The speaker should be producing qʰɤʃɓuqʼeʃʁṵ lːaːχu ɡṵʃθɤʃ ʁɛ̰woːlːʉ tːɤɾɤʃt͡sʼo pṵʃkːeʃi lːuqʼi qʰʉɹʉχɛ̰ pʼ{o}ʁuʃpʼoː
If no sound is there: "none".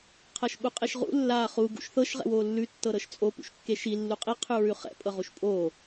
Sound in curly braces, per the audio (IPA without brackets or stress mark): ɤ